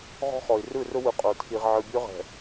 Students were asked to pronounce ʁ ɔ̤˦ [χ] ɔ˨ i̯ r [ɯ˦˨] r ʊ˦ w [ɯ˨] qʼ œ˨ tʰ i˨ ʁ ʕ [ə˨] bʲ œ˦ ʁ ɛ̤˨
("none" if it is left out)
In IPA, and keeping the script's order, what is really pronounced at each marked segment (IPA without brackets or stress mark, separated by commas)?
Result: χ, ɯ˦˨, ɯ˨, ɯ˨